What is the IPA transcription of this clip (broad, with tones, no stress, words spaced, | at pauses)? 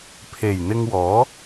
pʰe˨˩jn̪ɪ˧ŋwɔː˨˥